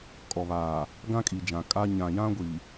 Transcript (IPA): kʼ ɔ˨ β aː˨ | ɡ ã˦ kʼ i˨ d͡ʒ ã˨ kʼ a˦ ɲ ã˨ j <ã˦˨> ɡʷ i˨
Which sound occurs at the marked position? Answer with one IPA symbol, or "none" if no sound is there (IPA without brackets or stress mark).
ã˦